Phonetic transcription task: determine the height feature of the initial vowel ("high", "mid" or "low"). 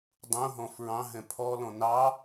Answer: high